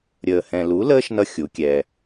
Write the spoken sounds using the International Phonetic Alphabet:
ɾʲ əː˨ h ɛ̃˨ l u˨˦ l əː˦ ʃ n ʌ˧ xʲ u˨˦ kʲ ɛ˧

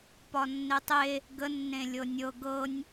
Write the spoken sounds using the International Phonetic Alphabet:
p ɒ nː e tˤ e | ɡ ə nː ẽ lʲ ɤ nʲ ɤ ɡ ɤ nʲ

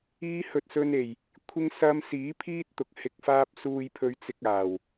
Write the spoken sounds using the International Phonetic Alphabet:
iː˧ h ɵ˨ t̚ s ɵ˧ n e˨˩ j | kʷʰ ɪ˧ ŋ s ɐ˧ m s iː˨˥ pʰ iː˥ t̚ t̪ ʊ˨ k̚ h ɪ˨ k̚ f aː˧ p̚ s uː˧ j pʰ ɵ˧ ɥ t͡s ɪ˧ k̚ aː˨˩ w

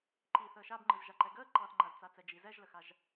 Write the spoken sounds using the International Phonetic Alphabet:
ǃ i θ əː ʃ a b ŋ͡ǃ ɯ z ʒ a ǃ ɛ ɡ əː ǃ ɑ θ ŋ͡ǃ a z t͡s a t͡s ɛ d͡ʒ i z ɛ ʒ l ə x a ʒ

